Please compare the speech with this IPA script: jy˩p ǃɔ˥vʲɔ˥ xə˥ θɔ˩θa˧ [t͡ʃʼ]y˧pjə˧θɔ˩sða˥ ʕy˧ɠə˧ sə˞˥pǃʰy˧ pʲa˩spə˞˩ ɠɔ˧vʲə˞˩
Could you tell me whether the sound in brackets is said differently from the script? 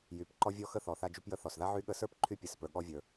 yes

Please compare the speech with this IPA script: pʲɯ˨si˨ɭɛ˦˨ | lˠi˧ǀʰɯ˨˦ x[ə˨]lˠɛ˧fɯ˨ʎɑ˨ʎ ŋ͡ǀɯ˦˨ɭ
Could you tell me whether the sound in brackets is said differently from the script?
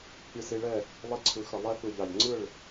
no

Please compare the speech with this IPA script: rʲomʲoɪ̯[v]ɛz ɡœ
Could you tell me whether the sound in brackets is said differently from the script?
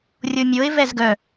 no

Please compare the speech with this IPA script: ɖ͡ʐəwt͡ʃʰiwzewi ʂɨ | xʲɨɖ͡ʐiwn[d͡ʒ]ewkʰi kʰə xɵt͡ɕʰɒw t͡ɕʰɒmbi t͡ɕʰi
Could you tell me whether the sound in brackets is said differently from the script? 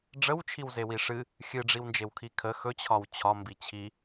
no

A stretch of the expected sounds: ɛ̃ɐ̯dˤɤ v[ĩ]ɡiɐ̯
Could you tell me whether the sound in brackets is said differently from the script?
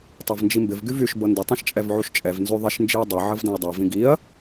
no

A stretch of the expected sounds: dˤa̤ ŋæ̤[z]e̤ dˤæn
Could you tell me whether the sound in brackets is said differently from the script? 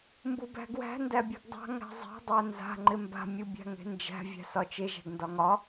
yes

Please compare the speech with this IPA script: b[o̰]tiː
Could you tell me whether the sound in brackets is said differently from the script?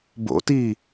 no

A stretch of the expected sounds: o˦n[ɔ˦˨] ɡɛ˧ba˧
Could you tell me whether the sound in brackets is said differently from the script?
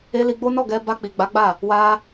no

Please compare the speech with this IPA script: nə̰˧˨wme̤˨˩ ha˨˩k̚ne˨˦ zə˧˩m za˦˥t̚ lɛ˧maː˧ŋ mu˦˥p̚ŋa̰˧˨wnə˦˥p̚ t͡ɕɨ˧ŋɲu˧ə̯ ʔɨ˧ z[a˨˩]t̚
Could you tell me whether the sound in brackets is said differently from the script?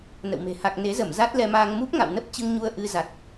no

